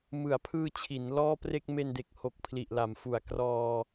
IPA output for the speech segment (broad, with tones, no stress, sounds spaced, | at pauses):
m ɯ˩˦ a̯ pʰ ɯː˧ t͡ɕʰ i˩˦ n l ɔː˥˩ p r e˥˩ k̚ m e˧ n d e˨˩ k̚ h o˨˩ k̚ pʰ l i˨˩ ʔ l a˩˦ m f u˨˩ a̯ k r ɔː˧